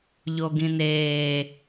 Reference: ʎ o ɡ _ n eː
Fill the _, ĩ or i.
ĩ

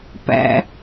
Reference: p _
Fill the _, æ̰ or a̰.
æ̰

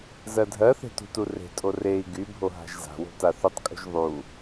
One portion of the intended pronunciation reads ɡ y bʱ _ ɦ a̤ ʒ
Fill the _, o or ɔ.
o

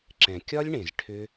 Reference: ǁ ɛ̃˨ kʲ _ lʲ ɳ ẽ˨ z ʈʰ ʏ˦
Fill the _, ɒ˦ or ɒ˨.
ɒ˦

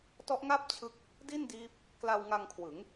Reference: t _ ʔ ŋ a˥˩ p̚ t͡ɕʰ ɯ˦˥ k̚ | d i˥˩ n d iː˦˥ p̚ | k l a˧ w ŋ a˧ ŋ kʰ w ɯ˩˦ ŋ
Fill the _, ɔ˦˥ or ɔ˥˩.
ɔ˦˥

